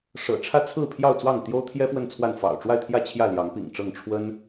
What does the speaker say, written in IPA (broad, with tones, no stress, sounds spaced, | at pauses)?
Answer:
ʂ ɤ̰˨˩ ʈ͡ʂʰ ä˥˨ t͡sʰ ɹ̩˥˨ pʰ j ɑ˥˨ ʊ̯ t͡s w ɑ˥˨ ŋ t̪ j o˦ ʊ̯ t̪ʰ j ɛ˦ f w ə˥˨ n t͡sʰ w a˥˨ n f ɑ̰˨˩ ʊ̯ ʈ͡ʂ w a˥˨ ɪ̯ t̪ʰ j ä˥˨ t͡ɕʰ j ä˥˨ l j ɑ˨˦ ŋ p ḭ˨˩ ŋ ʈ͡ʂ ɤ˥˨ ŋ ʈ͡ʂʰ w ə˦ n